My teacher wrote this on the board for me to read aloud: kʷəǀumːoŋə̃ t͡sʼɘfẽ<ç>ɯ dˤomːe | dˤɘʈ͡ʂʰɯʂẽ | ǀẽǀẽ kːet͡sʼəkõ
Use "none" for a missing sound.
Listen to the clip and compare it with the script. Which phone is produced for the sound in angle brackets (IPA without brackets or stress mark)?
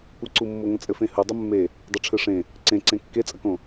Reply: h